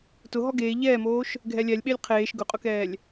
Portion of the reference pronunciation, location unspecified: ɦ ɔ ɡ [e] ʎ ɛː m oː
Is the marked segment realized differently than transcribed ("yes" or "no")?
yes